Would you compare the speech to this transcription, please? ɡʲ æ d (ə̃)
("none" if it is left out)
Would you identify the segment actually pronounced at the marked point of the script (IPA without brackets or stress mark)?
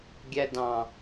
ɑ̃